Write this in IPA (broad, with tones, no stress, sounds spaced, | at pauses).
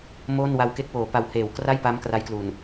m oː˥˩ n w a˧ w k e˦˥ k̚ w oː˩˦ p a˨˩ w h eː˨˩ w k r a˥˩ j p a˦˥ m k r a˦˥ j k l u˨˩ n